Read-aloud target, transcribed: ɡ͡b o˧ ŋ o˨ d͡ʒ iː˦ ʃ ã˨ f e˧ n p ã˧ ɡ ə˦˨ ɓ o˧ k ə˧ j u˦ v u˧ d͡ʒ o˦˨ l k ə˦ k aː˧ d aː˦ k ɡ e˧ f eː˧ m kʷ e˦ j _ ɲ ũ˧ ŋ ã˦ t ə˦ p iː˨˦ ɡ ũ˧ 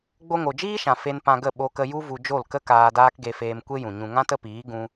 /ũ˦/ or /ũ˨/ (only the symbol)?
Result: ũ˨